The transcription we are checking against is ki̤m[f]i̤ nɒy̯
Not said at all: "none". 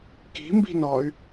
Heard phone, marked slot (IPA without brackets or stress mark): b